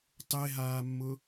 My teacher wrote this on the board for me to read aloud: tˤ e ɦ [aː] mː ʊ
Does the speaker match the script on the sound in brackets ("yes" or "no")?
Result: yes